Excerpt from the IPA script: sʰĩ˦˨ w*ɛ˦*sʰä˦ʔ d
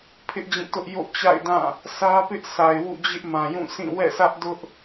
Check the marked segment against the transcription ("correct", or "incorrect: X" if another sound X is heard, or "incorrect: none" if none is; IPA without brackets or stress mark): incorrect: ɛ̰˦˨